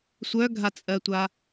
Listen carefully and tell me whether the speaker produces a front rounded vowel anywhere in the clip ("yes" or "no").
yes